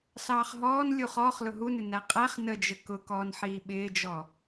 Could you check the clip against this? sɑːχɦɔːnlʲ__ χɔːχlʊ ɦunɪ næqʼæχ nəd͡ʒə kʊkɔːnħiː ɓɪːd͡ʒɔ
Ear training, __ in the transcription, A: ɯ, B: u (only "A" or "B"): B